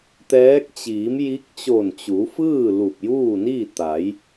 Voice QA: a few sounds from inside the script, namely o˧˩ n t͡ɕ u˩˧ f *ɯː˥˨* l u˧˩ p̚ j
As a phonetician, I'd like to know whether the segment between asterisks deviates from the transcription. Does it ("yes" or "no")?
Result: no